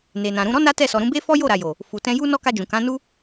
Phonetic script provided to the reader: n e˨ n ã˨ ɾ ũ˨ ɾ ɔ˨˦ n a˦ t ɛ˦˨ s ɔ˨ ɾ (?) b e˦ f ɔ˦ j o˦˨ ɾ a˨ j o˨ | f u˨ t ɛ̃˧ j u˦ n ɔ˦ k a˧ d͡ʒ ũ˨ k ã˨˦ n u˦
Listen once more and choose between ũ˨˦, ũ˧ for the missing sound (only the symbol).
ũ˨˦